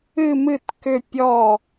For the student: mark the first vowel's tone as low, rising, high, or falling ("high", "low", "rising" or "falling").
falling